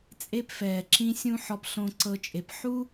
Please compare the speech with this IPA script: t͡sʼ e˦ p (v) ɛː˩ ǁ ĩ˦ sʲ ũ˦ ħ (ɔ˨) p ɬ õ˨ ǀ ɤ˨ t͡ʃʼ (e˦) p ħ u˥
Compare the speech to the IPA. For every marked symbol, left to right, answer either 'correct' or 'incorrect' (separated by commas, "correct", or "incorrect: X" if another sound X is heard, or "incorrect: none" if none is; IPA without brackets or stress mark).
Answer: incorrect: f, correct, incorrect: e˩